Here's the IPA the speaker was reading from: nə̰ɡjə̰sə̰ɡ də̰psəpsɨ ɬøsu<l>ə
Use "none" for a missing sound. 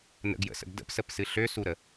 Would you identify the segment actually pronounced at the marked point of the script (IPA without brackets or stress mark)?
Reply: ɾ